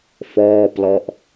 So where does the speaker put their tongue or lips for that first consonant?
lips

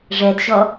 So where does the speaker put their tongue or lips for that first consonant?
retroflex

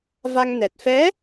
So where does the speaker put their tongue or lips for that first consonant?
lips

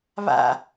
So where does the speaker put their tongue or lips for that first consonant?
lips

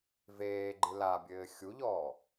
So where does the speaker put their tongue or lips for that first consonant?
lips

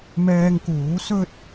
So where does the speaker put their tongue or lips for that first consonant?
lips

